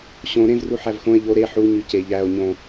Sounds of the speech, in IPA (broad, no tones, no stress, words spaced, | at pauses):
ɕõ ɾẽvru ħævxõe̯ ʎo ɾe ħuɲy ce ʎæo̯ ɲõ